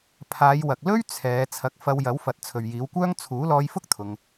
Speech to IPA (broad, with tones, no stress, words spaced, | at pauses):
pʰaː˨˧jwɐ˨k̚lɵ˥ɥ t͡sʰɛː˨˧ t͡sʰɐ˨˥k̚fɐ˧wjɐ˨˥wfɐ˨t̚ t͡sʰɵ˨ɥjiː˨˥wkʷœː˥ŋ t͡sʰuː˨˥lɔː˧jfʊ˥k̚ t̪ʰʊ˧ŋ